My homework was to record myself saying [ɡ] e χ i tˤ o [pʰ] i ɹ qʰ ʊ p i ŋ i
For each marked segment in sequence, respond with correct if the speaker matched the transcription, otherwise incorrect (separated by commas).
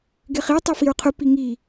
correct, incorrect